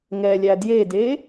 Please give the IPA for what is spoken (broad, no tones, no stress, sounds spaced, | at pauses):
ŋ ɛ lʲ æ d j e d e